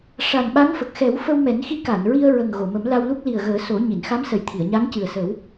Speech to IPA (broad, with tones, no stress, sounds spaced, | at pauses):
ʂ a˨˩ n ɓ a˧˥ ŋ f ə˨˩ k̚ x ɛ˨˩˦ w f ə˧ w m ɛ˨˩˦ n x i˧˥ k a˨˩˨ n ɹ i˧ ə̯ ɹ ə˨˩ ŋ ɣ o˨˩˨ m ə˨˩˦ m l a˧ w l u˦˥ k̚ l i˨˩ ə̯ ɣ əː˨˩˦ s o˨˩˦ ɲ i˨˩˨ n x a˧˥ m s ə˨˩ j t̪ʰ i˨˩˨ ə̯ ɲ a˧˥ ŋ c ɨ˨˩ ə̯ s ə˨˩˦ w